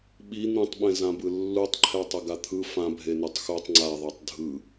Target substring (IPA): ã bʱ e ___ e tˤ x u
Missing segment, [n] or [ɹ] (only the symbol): n